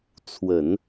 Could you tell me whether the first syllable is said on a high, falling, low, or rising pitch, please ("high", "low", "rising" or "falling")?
low